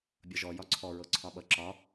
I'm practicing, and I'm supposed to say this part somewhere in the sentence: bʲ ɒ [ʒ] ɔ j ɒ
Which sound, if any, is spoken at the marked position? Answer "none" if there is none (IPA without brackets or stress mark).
ʒ